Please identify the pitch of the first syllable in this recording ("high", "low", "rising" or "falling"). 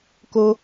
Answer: high